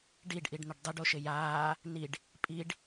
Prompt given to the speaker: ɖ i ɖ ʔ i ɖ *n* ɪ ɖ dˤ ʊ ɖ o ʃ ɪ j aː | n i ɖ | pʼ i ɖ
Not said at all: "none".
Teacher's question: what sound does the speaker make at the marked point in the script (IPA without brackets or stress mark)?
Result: n